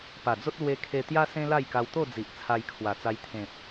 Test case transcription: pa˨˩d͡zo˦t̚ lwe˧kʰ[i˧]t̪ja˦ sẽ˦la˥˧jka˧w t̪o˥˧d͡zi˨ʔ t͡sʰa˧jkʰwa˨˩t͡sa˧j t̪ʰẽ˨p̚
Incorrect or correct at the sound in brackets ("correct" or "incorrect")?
incorrect